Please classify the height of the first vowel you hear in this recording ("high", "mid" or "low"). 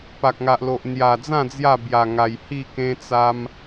low